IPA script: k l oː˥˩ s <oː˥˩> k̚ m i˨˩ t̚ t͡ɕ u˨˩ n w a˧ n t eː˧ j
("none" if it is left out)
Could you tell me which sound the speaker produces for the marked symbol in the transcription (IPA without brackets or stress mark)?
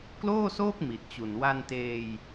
oː˥˩